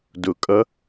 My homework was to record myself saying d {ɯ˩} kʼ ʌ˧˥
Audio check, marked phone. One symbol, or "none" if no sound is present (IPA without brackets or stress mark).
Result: ʊ˩